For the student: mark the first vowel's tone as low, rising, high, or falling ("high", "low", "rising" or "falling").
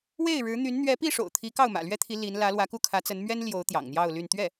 falling